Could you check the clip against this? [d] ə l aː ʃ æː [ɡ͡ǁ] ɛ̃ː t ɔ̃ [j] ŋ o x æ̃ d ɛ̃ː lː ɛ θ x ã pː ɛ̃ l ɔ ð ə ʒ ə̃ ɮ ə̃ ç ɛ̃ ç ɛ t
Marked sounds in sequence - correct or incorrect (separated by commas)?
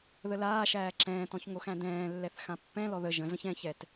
incorrect, incorrect, incorrect